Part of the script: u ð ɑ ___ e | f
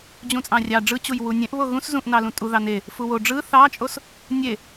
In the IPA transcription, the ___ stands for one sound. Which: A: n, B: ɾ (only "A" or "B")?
A